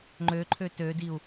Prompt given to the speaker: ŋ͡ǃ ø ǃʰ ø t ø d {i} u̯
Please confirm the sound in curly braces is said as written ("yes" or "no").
yes